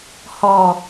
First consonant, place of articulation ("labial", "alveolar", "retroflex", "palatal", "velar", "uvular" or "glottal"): glottal